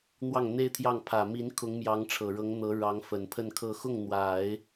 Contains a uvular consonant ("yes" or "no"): no